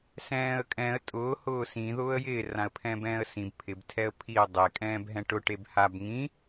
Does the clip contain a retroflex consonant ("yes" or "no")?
yes